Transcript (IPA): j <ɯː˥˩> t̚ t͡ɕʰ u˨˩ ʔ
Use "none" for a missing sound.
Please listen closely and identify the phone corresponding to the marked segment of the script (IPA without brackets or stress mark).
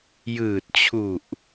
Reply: ɯː˨˩